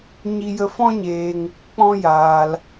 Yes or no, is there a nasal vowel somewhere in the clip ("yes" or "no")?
yes